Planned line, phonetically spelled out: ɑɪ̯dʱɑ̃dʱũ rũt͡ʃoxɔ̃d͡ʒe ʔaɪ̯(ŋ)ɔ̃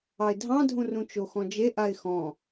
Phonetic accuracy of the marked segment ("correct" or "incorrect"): incorrect